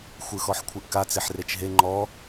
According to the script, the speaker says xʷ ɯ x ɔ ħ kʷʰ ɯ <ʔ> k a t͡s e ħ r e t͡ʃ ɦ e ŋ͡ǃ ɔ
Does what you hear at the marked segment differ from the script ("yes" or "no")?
no